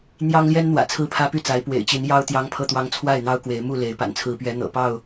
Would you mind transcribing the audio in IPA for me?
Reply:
n̪ j ɑ˦ ŋ l j ɛ˦ n n̪ w ä̰˨˩ t͡sʰ ɹ̩˦ pʰ ä˦ p y˥˨ t͡s a˨˦ ɪ̯ p w ḛ˨˩ ɪ̯ t͡ɕ i˨˦ n j ɑ˦ ʊ̯ t̪ j ɑ˦ ŋ pʰ ɤ˥˨ t̪ w ɑ˦ ŋ t͡sʰ w a˥˨ ɪ̯ n̪ ɑ˦ ʊ̯ k w e˨˦ ɪ̯ m u˥˨ l e˨˦ ɪ̯ p a̰˨˩ n t͡sʰ ɹ̩˨˦ p ɥ ɛ˨˦ n̪ ɤ̰˨˩ p ɑ˥˨ ʊ̯

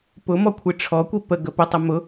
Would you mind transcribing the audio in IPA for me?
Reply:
p ʊ m ɔ kʷʰ i ʈ͡ʂʰ ɔ kʷ i p ə ɡ ə p ə tˤ ə m ʊ

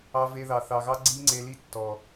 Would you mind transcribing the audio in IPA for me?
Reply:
ɑ˧ v e˧ ð ɑ˨ θ ɑ˨ ɣ ɑ˦ ɡ͡ǀ i˦ ŋ͡ǀ e˧ l i˧ tː ɔ˨

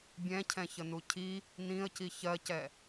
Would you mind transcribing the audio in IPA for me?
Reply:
bʲ ɛ̃ cʰ ɛ̃ ç ə n u cʰ i | n ĩ ə̯ c i ç ɜ c ɛ

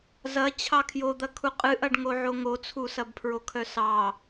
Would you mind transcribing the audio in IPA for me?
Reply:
z ɐ t͡ɕʰ ɑ kʰ j o d̪ ɐ kʰ u qʼ ɨ ʔ ɐ ɖ ŋ o ʕ o ŋ o t͡sʰ u s ɐ b pʰ ɹ o kʰ œ s ɑ

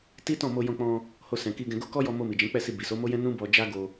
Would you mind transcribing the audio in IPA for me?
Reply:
t i˦ t ɔ̃˦˨ m o˧ j ɔ̃˧ k͡p ɔ̃˧ | h o˧ s ɛ̃˨ k i˧ ɡ ɛ̃˧ ɡ o˦ k ɔ˦ j ɔ˧ m o˧ m i˨ d͡ʒ ɛ̃˨˦ k͡p ɛ˦˨ s i˧ b i˨ s o˨˦ m o˦ j ɛ̃˦ n ũ˦ b ɔ˧ d͡ʒ a˦ ɡ o˧

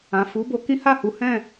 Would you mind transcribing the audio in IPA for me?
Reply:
ã˨ f u˨˦ b o˧ k ĩ˦ h a˦˨ h u˨˦ h ɛ̃˦˨

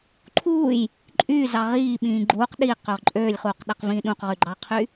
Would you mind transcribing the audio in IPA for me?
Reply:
ǃʰ uː j | ǃʼ yː z ɑ ʁ iː ɓ ĩː ɡ͡ǃ uː q ɗ iː q ø ʁ ǃʼ øː lʲ χ uː q ɗ æ q v ĩː ɗ ũ q ʁ y ɡ͡ǃ ɑ qʰ y

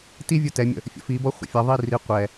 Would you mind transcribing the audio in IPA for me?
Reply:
t i vʲ u t ɛ mʲ ə̰ | fʲ ə̰ f i b ɔ χʷ ə̰ fʲ ʌ ðˤ i r i qʷ ɛ

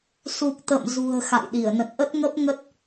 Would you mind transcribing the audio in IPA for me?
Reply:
s u˨˩ k̚ t̪ ə̰˧˨ m z ṳ˨˩ ə̯ x a̰˧˨ j ɗ i˧˩ ə̯ n ə̰˧˨ n ʔ ə˦˥ t̚ ŋ ə˦˥ p̚ ŋ ə˦˥ t̚

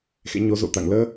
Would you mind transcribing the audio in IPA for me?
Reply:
x ḛ˧˥ ɲ o˨˦ z o̰˧˨ t̪ a̰˧˨ ŋ l əː˧

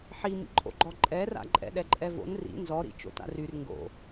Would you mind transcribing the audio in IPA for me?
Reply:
ħ i m ḭ ǃʼ o̰ ɡ͡ǃ ɔ ǃʼ ɛ r a̰ ǃʼ ɛ̰ ɗ ɛ ǃʼ ɛ v o̰ n r ḭ n z ɔ ɾ ḭ t͡ʃ o̰ t a̰ r y r ŋ ɡ o̰

